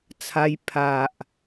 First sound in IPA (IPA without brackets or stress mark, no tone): t͡sʰ